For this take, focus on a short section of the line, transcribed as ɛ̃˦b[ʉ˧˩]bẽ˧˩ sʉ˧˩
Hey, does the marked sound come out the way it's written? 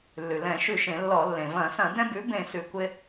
no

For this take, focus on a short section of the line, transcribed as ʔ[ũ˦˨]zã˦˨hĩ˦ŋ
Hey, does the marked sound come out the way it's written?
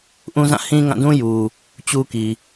no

